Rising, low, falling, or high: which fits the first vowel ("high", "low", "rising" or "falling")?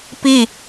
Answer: falling